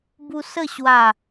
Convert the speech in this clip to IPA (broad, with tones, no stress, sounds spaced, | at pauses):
b u˧ s ə˥˧ ɕ w a˥˧